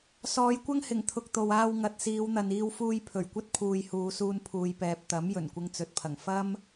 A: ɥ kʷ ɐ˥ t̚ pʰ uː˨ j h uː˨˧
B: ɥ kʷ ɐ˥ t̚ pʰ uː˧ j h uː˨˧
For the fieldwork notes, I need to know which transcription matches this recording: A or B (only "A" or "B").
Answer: A